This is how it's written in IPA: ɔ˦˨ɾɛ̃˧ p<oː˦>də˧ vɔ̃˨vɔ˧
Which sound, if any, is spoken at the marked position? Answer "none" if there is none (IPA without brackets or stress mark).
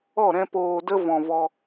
oː˨